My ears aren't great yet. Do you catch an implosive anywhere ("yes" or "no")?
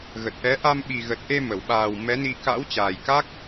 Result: yes